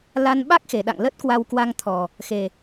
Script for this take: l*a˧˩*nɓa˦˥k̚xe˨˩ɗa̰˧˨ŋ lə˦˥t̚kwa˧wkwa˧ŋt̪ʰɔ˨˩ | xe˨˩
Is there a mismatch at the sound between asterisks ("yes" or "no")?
yes